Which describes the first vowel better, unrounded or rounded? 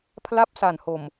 unrounded